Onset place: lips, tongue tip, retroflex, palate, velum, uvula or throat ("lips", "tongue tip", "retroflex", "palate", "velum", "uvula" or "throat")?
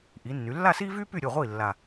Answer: throat